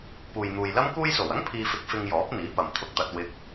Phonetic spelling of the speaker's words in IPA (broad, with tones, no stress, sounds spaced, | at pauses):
p uː˨ j n̪ uː˨ j l ɐ˥ m k uː˧ j s o˨˩ w ɐ˥ ŋ pʰ iː˧ f ɪ˧ k̚ f ɪ˧ ŋ j ɔː˨˥ p̚ n̪ iː˨˥ p ɐ˨ m t̪ʰ ʊ˧ k̚ t̪ ɐ˧ t̚ w ɪ˧ k̚